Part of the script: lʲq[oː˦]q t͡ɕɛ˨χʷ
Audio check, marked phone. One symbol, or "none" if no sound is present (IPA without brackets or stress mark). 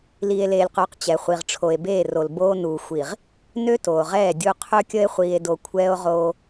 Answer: oː˨